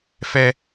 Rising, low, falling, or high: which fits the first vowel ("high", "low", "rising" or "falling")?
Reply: high